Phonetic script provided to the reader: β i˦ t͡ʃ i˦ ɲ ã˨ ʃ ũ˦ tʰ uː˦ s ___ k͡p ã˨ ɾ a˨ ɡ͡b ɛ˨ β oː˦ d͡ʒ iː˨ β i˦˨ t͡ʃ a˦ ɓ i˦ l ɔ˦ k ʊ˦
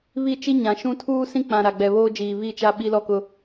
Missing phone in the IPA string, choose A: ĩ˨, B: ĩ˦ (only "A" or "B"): B